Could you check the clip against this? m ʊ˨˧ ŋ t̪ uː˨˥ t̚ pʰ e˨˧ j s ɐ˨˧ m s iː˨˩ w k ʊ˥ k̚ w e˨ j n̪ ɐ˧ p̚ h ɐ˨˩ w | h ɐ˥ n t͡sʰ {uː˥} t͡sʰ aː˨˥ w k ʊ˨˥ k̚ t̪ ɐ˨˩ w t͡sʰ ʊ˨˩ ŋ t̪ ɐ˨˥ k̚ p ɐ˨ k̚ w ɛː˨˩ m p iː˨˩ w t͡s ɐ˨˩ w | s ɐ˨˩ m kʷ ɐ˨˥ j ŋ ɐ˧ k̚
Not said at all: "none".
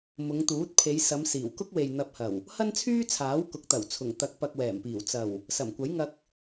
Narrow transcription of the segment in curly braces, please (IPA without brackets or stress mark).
yː˥